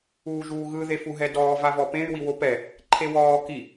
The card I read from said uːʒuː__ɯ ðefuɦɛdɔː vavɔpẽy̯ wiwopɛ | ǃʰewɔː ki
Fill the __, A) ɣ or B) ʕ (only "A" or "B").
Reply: A